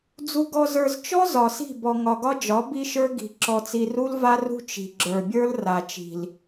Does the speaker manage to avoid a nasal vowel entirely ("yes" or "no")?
yes